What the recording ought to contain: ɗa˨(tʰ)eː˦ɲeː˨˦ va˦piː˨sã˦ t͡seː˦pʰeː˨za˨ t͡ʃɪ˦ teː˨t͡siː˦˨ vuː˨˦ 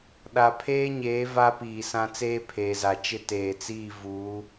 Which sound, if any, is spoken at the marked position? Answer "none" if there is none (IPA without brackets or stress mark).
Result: pʰ